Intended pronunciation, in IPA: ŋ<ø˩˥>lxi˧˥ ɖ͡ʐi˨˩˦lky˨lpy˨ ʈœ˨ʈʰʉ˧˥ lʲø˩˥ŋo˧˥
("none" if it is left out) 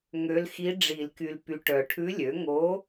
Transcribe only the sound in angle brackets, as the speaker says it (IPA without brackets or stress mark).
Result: ø˧˥